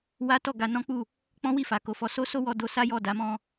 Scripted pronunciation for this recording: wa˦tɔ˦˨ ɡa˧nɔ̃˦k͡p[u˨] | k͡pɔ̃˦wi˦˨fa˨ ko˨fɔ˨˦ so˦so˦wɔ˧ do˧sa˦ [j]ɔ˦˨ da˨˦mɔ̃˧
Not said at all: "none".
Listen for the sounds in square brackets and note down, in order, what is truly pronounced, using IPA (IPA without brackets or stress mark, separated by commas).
u˦˨, j